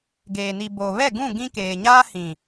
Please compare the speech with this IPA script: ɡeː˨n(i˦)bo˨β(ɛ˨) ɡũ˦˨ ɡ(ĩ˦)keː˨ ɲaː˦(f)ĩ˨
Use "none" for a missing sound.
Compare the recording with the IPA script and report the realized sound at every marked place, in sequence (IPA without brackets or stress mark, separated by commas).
i˨, ɛ˦˨, ĩ˦, h